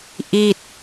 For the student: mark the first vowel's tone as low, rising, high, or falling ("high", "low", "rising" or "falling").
falling